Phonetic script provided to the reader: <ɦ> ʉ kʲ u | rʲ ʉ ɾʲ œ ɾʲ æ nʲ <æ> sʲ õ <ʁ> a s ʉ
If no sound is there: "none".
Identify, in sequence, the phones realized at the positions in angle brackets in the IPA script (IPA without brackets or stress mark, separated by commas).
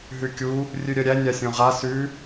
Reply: ɦ, a, ʁ